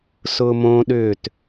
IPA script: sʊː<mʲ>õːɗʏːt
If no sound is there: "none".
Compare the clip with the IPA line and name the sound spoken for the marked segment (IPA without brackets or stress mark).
m